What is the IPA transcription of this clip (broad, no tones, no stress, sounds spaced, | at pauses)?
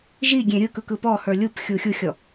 ʒ i ɡʲ ẽ ɾʲ ɯ k ɯ k ɯ p ɔ h ə˞ lʲ u p xʲ u xʲ u xʲ ɔ